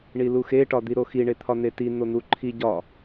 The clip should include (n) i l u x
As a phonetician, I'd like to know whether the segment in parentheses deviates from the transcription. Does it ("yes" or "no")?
yes